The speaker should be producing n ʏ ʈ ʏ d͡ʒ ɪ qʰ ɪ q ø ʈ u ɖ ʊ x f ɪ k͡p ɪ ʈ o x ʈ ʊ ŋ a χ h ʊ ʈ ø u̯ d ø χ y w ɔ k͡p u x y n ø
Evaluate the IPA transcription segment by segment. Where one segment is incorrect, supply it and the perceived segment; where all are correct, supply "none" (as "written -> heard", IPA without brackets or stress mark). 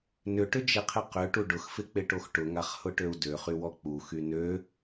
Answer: none